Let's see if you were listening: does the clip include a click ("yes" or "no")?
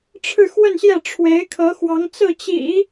no